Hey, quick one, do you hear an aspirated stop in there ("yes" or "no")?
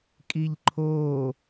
yes